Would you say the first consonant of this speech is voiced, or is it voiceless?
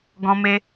voiced